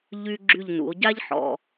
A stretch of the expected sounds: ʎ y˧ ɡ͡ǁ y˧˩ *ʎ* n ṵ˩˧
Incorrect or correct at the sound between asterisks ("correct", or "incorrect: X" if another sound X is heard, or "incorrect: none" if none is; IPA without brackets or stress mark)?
correct